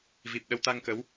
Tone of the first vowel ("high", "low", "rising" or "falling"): low